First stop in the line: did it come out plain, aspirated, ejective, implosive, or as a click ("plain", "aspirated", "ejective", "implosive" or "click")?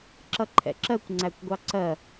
click